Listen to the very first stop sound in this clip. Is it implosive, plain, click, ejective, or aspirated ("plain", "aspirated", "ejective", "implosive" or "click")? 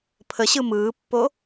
aspirated